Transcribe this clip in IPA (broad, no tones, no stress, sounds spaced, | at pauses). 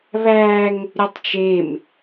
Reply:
β æ ŋ | ɾʲ u tˤ t͡ʃ e m